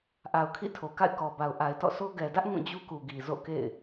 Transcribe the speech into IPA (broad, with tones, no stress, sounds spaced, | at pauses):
ʔ a˨ ʊ̯ kʰ ḭ˦˨ tʰ o˨ k a̰˦˨ ɪ̯ k ɔ˨ b a˨ ʊ̯ ʔ a˨ ɪ̯ t ɔ̰˦˨ sʰ o˦ ɡ ɛ˨ d ä˦ ʔ ŋ ũ˦˨ d͡ʑ u˦ k u˨ ɡ i˨ z o̰˦˨ k ḛ˦˨ ɪ̯